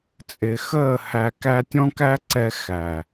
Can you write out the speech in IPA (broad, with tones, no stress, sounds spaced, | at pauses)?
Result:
t͡sʼ ɪ˨ x əː˦˨ h æ˧ k æ˦ tʲ ɔ̃˦ k æ˦ ǀ ɛ˧ x æ˨